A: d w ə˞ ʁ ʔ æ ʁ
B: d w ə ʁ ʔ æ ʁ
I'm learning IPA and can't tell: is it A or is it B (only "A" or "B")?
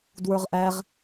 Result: A